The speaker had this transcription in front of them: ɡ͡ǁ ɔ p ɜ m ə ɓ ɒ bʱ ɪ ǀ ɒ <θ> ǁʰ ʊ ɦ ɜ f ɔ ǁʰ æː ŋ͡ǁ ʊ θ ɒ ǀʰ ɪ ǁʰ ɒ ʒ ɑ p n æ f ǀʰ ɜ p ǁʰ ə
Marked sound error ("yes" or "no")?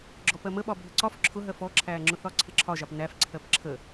yes